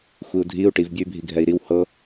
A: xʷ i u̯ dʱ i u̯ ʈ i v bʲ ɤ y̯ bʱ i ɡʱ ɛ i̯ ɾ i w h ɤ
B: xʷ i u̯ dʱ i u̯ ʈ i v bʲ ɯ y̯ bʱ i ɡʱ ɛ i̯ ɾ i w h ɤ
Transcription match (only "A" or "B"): B